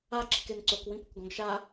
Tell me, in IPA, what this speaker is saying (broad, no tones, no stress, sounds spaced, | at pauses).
a ǁ i̤ k e n ǀ o k w ĩ p ʊ k ɡ ɔ̃ ɡ ʃ a